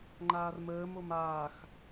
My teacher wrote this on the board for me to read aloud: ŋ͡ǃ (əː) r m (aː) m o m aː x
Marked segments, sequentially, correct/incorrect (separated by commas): incorrect, incorrect